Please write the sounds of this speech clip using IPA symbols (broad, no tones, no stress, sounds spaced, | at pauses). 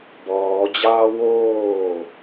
b ɔː d͡ʑ ɑː w oː